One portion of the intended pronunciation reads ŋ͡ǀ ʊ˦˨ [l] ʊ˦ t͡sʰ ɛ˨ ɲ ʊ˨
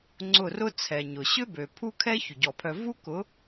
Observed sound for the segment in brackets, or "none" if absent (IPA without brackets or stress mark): r